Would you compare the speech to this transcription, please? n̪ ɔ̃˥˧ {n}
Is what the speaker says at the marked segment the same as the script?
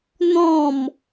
no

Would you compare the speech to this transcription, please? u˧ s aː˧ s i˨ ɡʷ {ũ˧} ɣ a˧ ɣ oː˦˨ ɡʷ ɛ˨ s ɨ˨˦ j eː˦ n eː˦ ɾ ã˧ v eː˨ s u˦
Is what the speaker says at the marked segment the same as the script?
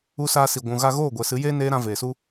no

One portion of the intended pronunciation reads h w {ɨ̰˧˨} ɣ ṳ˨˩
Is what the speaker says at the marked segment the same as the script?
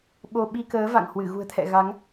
no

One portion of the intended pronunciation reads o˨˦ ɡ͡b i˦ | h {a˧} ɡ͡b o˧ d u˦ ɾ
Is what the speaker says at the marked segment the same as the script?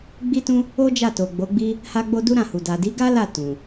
yes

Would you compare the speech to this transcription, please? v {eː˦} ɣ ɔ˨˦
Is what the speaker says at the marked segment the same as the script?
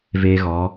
yes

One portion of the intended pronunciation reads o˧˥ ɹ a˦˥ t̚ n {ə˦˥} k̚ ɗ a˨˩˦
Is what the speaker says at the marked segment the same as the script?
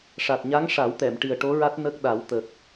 yes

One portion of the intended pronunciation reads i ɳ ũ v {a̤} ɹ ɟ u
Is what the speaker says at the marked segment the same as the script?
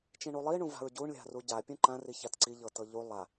yes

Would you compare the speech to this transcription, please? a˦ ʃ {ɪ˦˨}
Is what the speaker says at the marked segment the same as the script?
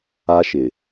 no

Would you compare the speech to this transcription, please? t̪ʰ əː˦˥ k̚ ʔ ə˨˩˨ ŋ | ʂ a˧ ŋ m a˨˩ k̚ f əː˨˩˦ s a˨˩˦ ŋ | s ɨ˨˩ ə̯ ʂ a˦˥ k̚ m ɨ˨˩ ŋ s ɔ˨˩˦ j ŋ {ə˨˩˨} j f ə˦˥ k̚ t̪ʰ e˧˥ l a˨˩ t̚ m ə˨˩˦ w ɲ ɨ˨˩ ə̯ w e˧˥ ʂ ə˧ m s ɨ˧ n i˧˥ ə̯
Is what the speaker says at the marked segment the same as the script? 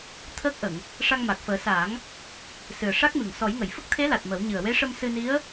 yes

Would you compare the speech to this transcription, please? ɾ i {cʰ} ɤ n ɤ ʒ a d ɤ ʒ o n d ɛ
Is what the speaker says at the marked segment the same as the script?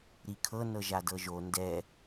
no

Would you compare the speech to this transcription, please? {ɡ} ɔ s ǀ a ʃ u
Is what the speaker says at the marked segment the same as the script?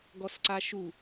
yes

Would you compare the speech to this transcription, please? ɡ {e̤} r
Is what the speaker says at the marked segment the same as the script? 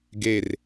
no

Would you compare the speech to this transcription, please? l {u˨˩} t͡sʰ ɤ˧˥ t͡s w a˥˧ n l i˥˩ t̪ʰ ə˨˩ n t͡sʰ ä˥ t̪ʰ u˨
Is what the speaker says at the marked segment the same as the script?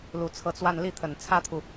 yes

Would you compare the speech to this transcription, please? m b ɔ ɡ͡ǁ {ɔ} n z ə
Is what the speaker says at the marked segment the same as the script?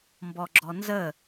yes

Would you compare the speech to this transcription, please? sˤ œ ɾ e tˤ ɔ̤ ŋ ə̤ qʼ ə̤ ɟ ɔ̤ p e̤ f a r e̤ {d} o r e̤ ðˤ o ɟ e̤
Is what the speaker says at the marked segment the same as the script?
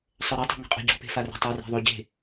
no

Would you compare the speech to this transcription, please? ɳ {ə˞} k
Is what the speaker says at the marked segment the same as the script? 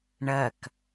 no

